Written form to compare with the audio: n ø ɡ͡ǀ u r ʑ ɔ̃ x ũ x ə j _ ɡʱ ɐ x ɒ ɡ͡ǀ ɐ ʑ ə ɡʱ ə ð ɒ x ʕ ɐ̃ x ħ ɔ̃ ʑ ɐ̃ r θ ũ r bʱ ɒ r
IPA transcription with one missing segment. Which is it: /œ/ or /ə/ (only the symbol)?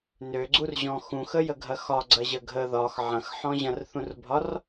ə